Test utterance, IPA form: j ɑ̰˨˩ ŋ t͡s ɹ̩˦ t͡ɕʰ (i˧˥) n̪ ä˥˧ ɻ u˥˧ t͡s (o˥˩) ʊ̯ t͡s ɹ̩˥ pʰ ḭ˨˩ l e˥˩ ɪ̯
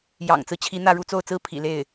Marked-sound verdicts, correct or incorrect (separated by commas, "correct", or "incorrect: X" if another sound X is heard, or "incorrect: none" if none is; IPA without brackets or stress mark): correct, correct